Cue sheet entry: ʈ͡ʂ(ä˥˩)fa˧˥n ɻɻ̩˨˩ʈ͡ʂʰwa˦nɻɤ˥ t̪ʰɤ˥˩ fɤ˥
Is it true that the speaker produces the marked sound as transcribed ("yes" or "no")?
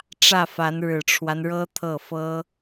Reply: yes